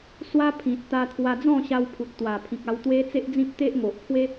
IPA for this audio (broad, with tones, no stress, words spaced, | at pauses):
swa˦pʰĩ˨t̚t̪a˧ t̪ʰwa˧d͡zɔ̃˥˧ɕa˧wpʰu˨t̚ t̪wa˨˩pʰĩ˨k̚a˧wt̪we˦ t͡se˦ʔd͡zĩ˦p̚t̪e˦ʔŋo˨ʔ pʰwe˦